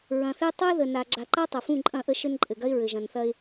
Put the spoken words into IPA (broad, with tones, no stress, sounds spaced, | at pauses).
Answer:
ɹ ɐ̃˨ θ e˦ tˤ ɐ˦ ɪ̯ ð ə˨ n a˨ ɡ͡ǁ a˨ ǃ a˦ tˤ ɐ˨ f ũ˦˨ ǃʼ ɐ̃˦˨ ʔ ə˦ ʃ ɘ˦ n ǃʼ ɘ˨ ɡ ɐ˦ ɪ̯ ɹ ɘ˨ ʒ ɐ̃˨ n θ ɐ˦ ɪ̯